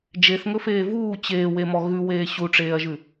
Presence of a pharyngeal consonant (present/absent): absent